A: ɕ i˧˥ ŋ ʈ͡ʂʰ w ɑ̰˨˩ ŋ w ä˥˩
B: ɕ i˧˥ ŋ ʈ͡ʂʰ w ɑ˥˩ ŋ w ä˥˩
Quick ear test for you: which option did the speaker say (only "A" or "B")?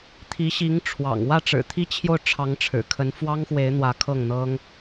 A